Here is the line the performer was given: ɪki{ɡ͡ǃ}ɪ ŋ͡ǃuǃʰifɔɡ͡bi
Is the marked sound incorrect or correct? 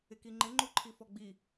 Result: incorrect